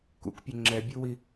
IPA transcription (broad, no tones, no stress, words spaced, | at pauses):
kṵkpʲo ŋ͡ǁɛbʲuwi